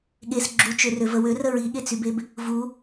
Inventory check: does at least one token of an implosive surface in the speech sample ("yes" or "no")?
yes